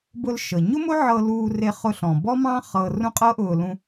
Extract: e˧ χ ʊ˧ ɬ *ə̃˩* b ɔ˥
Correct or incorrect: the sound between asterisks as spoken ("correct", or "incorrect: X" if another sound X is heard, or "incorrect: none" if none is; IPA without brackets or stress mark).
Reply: incorrect: ɔ̃˩